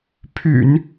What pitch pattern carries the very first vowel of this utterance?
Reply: low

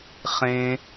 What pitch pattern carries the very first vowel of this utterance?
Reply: high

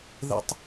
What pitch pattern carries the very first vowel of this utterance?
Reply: high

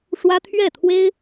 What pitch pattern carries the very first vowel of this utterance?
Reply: high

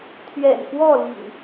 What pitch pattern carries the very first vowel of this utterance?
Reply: low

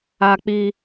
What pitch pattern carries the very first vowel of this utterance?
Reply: high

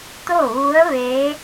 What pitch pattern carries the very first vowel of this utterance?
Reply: falling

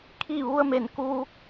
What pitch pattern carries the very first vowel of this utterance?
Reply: falling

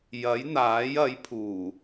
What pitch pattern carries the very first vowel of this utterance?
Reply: rising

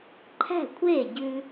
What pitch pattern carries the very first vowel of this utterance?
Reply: falling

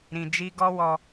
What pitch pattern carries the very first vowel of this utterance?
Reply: low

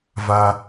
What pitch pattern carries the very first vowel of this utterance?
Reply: high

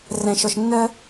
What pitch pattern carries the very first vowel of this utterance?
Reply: low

